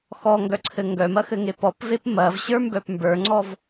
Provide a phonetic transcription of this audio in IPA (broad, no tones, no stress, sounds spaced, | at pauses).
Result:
x ɔ ŋ ɡ œ ǀʰ ɘ ŋ ɡ œ m ɐ x ɘ ŋ e p ɔ p v e p m ɐ v ɕ ə˞ m b œ p m b ə˞ ŋ͡ǀ ɔ v